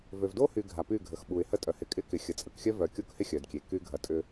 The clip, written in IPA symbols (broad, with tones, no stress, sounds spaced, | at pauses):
v ø˨ v d o˦ h y˨ ɡʱ a˨ p y˦˨ ɡʱ ə˨ x ɓ u˨ ɪ̯ h ə˦ tʼ œ˨ h ɪ˨˦ kʼ ɪ˦ k ɪ˨ xʲ ə˨ t͡sʼ ə˨ k xʲ œ˦ v œ˨ kʲ o˦ k h ɪ˦ xʲ œ˨ d kʲ e˨ k y˦ ɡʱ ɐ˨ tʼ ʏ˦